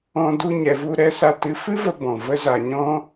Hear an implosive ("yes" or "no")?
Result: no